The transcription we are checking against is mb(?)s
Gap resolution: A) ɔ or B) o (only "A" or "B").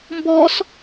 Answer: A